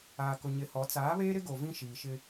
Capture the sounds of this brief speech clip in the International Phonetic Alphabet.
aː˨kʊ˨ɲɪ˨˦hɔ˨˦ t͡saː˨˦βeː˦ɾɪ˦ ɡo˨vĩ˦ʃiː˨ʃɪ˦

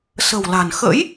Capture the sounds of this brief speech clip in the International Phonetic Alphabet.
sə̤˨˩wla̤˨˩n xə̰˧˥j

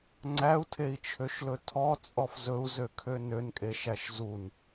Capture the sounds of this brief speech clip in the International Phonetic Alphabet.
ŋ͡ǀæu̯tʰei̯t͡ʃʰøʃlɵ tʰɔt͡sʼɔf zɵu̯zøkʰø nønkʼeʃæʃ zun

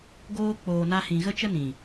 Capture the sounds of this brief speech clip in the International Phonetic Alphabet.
ɡoː˦ k͡poː˧na˦hĩ˧ ɣə˦t͡ʃə˦nĩ˨

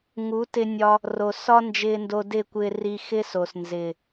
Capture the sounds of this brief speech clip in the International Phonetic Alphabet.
ŋu˨˦tɪ˧nʲɒ˧ | ro˨sɒ˦ nd͡ʒɪː˧ndo˧dɪ˦˨kʷɪː˧ ri˧xɪ˦so˨s nzɪː˨

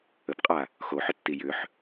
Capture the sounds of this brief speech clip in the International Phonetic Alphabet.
əpqʼa | xoħʏtːi jʏħ

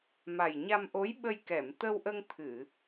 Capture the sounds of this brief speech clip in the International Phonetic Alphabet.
ma˨˩jɲa˧mʔo˧˥j ɓə˧j kɛ˨˩˨mt̪ə˧wʔə˧ŋ t̪ʰɨ˨˩˨

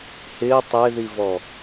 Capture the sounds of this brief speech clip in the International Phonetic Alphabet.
hɪː tˤeðivɔ

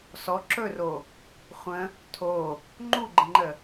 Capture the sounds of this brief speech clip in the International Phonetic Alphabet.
sɔ ǁɵro | χʷə̃ | tʰo | ŋ͡ǃuɡ͡ǃə̃ŋ͡ǃə

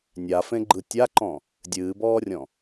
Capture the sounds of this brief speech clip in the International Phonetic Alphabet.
nʲafẽɡ͡ǃɯ tʲaǃɔ̃ | dʲɨːbɔːrʲɔ̃

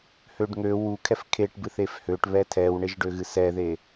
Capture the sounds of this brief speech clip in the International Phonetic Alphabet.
høɖŋø wukʰɛf kʰeʈbɨθef høʈβɛ tʰɛwɳeʒɖøɣɨ sɛðe

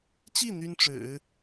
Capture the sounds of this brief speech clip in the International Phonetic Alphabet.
t͡ɕi˥˩ n̪y˥nʈ͡ʂɻ̩˨˩˦

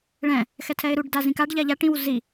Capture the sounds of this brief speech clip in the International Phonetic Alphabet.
ɭɛ̃ | xɛtʰɛɪ̯ɾuɖ dazĩkaɖ ʎaʎa ʈĩw zi

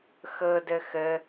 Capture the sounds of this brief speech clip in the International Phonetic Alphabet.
xɤdə xə

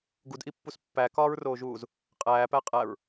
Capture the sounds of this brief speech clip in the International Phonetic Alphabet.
ɡudʔipːus pːækɒːɹroːʒuːz | qʼæːpæ qʼæɹ

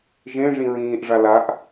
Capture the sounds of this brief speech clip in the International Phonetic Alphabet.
ʒẽʐĩ ɹĩːʔʐa laʔ

